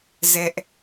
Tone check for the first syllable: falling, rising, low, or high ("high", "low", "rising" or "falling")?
high